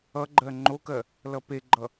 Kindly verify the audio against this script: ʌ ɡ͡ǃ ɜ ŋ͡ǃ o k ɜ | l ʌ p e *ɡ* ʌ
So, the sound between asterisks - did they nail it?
no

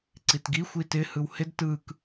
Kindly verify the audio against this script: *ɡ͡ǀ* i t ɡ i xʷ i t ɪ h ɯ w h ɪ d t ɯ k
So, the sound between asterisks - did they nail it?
no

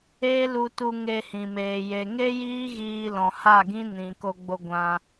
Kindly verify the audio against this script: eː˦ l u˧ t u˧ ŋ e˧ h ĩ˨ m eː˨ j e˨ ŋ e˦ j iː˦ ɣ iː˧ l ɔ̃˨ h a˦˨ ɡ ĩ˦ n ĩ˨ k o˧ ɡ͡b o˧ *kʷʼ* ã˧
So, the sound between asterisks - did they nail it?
no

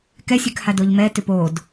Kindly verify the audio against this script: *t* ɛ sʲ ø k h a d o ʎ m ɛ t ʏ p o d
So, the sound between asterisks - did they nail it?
no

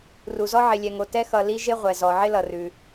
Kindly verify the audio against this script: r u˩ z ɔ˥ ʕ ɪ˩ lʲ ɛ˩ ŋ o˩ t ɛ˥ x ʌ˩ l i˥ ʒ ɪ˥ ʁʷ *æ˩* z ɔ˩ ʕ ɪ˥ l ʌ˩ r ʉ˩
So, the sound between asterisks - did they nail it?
no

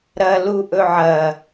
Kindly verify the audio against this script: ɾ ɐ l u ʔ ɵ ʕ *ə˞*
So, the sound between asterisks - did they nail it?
no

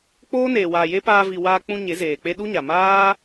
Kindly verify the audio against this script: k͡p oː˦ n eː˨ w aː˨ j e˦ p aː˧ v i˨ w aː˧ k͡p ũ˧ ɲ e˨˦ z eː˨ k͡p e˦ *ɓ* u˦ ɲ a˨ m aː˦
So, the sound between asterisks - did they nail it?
no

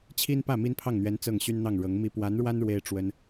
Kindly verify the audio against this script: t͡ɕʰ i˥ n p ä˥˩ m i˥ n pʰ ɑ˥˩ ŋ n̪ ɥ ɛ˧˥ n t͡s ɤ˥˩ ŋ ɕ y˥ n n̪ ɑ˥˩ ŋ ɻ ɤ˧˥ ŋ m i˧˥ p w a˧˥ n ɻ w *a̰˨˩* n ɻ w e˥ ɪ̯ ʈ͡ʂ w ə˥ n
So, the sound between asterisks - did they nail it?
no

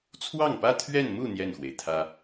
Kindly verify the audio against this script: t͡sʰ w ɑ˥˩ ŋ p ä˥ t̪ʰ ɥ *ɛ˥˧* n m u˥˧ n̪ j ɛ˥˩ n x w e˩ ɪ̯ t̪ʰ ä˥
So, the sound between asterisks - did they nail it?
yes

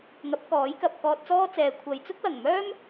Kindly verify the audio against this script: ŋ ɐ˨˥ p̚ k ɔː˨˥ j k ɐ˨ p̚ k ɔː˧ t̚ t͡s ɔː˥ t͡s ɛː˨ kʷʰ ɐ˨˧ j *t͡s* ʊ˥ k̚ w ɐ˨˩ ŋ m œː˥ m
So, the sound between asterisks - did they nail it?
yes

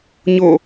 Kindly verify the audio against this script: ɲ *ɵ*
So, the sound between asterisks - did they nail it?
no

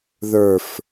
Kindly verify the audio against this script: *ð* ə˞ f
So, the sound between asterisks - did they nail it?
yes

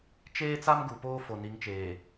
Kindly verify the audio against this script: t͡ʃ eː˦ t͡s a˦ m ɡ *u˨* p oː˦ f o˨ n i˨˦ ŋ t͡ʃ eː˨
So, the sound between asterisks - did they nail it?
yes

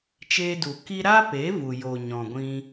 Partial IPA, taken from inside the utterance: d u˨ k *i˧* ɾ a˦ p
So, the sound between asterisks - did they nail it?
yes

